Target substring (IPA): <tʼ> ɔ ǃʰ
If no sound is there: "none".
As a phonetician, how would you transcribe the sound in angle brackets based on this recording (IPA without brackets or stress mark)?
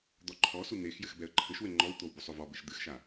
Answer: d̪